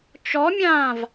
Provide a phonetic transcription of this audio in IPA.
t͡ʃ ɔ mʲ ãː v

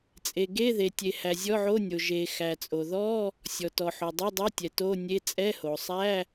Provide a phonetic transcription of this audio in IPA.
t͡sʼ e˩ ɡ e˧˥˧ ð e˩ tʲ e˩ h æ˩ zʲ ɔ˧˥˧ ʕ o˧˥˧ nʲ o˩ ʒ e˩ x æ˩ t͡sʼ o˩ ð ɔ˧˥˧ | sʲ ɔ˩ t ɔ˩ ħ o˩ dˤ e˧˥˧ dˤ o˧˥˧ tʲ ɛ˩ t o˧˥˧ nʲ e˧˥˧ t͡sʼ ɛ˧˥˧ h o˩ sˤ æ˧˥˧

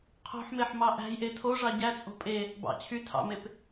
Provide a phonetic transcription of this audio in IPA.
qʰ o̤ ħ m e ħ m ɑ ʔ æ̤ j ʔ e tʰ o ʐ ɑ ɟ æ t͡sʼ o̤ pʼ e | b ɑ̰ t͡ɕʰ y tʰ ɑ̰ m e p

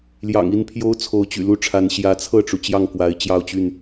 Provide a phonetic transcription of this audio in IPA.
l j ɑ̰˨˩ ŋ i˥˨ n pʰ j o˦ ʊ̯ t͡sʰ o˨˦ ʊ̯ t͡ɕ y̰˨˩ l u˦ ʈ͡ʂʰ a˨˦ n ɕ j ä˨˦ t͡sʰ ɤ˥˨ ʈ͡ʂ u˩ t͡ɕ j ɑ˥˨ ŋ k w a˨˦ ɪ̯ t͡ɕ j ɑ˥˨ ʊ̯ t͡ɕ y˥˨ n

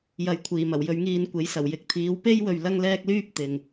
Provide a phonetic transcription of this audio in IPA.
j ɐ˨˥ j kʷʰ iː˨˩ m ɐ˨˩ w j ɵ˨˧ ɥ ŋ iː˧ n kʷ e˨˥ j s ɐ˨˩ w j ɪ˨ k̚ t̪ʰ iː˨˥ w p e˥ j w ɵ˨ ɥ l ɐ˥ ŋ l ɛː˥ k̚ l yː˥ p̚ t̪ ɪ˨ ŋ

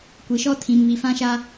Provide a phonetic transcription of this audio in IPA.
kʷ i˨ ʃ ɔ˦ tʰ ĩ˨ m β i˨ f ã˦ ʃ a˦

